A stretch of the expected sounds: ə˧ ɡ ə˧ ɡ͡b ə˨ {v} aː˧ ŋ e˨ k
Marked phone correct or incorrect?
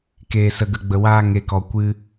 incorrect